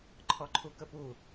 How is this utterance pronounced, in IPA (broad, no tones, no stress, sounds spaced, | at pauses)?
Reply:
ǃʰ ɔ ǃʰ u k ə p u